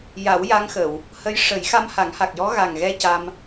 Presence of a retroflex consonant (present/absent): present